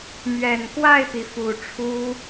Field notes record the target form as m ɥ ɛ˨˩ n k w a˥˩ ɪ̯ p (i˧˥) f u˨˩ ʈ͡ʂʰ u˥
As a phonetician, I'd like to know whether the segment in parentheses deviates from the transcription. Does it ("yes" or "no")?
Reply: yes